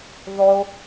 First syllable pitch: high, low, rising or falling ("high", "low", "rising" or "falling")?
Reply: low